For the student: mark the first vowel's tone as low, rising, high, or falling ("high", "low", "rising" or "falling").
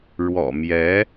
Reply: low